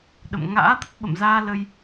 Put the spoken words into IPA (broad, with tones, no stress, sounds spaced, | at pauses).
ɗ ə̰˧˨ m ŋ a̰ː˧˥ t̪ ə˦˥ t̚ ɓ ə̰˧˨ m z aː˧ l ə˧ j